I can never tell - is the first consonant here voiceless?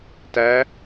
yes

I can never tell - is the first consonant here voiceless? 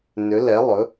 no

